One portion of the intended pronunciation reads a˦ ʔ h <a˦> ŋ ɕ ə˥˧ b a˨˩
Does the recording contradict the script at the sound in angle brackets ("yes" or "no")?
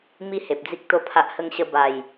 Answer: yes